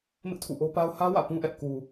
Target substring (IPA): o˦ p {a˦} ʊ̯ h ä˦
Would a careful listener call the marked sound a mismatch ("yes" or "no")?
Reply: no